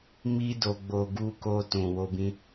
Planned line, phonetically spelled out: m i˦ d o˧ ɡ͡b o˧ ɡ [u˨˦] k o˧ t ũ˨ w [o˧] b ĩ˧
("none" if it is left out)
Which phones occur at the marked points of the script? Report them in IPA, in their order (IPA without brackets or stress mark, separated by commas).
u˧, o˧